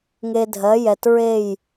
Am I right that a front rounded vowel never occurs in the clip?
yes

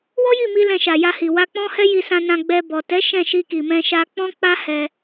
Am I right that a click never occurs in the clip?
yes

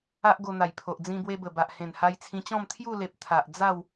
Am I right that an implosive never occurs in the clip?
yes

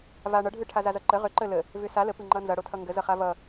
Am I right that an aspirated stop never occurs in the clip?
no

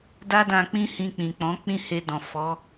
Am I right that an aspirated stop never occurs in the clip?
yes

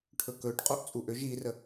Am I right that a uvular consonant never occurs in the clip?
no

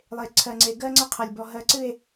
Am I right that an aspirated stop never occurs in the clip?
no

